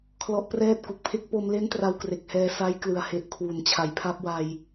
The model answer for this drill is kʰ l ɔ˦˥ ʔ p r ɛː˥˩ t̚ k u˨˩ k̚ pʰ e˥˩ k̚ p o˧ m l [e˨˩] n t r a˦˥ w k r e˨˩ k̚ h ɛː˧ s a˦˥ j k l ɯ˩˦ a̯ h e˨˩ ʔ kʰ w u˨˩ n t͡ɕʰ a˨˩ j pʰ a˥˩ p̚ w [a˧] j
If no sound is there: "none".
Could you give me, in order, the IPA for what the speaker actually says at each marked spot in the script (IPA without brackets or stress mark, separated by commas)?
e˦˥, a˧